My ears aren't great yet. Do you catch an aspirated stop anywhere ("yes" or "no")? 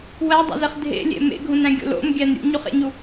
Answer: no